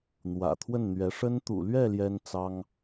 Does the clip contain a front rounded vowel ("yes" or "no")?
no